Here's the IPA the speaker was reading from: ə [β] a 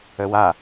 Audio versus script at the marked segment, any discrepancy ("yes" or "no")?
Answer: yes